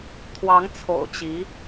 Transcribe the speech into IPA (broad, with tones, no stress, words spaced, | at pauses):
t̪ʰwɑ˧˥ŋ t͡sʰo̰˨˩ʊ̯t͡ɕi˧˥